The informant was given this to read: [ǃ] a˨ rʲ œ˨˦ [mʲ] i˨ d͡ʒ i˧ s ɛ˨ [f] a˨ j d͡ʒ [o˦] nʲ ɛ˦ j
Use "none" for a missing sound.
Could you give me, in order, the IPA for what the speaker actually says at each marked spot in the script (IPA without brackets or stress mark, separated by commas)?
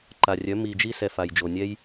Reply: ǃ, m, f, o˨